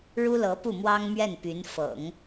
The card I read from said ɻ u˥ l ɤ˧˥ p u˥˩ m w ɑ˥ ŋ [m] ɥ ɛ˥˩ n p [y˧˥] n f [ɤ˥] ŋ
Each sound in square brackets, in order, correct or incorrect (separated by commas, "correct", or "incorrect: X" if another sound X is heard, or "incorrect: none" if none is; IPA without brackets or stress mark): correct, correct, incorrect: ɤ̰˨˩˦